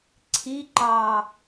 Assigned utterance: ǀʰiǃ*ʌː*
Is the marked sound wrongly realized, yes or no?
yes